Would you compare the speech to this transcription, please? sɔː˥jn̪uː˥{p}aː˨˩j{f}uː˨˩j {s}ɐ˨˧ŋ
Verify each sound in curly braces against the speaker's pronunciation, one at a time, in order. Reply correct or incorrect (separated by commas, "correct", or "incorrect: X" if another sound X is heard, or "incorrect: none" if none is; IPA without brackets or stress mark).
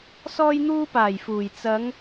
correct, correct, incorrect: t͡s